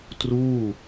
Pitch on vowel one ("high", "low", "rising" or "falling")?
falling